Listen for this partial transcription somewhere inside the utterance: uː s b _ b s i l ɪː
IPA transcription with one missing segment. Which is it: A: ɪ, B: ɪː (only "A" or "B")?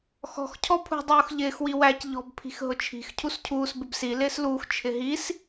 A